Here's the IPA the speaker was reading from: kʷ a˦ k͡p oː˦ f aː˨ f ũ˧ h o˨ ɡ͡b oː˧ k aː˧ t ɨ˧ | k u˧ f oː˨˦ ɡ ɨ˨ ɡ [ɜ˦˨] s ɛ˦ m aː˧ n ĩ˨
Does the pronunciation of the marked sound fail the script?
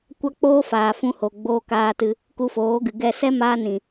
yes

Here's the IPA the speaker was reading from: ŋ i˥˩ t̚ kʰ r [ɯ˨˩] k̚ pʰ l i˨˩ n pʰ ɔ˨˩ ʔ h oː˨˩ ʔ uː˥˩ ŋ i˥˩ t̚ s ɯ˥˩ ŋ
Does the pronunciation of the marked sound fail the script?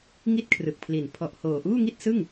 no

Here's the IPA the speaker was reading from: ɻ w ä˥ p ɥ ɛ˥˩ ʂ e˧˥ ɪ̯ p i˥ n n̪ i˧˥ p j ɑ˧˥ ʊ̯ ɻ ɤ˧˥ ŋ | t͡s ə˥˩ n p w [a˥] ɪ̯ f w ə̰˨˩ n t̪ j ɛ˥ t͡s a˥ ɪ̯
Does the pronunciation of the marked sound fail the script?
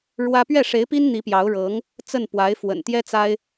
yes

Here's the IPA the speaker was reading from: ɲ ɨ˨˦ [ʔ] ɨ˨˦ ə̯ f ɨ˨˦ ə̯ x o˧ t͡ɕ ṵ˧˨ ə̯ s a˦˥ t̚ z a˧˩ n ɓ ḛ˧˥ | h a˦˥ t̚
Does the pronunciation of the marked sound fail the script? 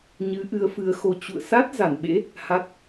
no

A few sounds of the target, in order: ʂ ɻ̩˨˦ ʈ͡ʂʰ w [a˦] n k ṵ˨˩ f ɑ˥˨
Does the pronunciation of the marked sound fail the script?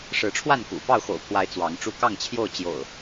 yes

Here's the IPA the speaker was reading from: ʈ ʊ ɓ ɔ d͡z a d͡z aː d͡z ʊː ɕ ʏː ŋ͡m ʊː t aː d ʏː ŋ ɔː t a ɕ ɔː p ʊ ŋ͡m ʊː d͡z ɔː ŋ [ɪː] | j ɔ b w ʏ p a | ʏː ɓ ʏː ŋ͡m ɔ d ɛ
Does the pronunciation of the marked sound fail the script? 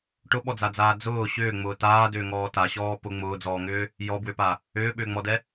yes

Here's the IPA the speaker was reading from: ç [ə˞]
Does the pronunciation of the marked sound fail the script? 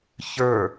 no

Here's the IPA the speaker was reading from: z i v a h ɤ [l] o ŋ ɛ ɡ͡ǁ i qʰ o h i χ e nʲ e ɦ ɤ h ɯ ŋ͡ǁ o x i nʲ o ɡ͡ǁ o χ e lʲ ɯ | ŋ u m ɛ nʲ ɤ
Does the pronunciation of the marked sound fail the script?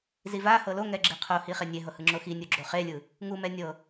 no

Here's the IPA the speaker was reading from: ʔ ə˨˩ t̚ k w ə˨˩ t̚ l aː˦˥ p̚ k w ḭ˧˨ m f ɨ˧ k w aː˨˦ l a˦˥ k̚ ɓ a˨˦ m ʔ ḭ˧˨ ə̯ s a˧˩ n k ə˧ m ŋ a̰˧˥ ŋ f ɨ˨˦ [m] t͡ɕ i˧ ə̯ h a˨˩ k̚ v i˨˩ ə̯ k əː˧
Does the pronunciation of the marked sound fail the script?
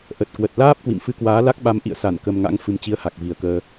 no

